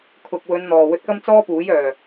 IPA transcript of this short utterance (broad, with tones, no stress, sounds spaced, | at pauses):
kʰ ʊ˨ k̚ w ɵ˨˧ n n̪ ɔː˨˩ w ɵ˧ t̚ k ɐ˥ m t͡s ɔː˥ p uː˨˥ j œː˨˩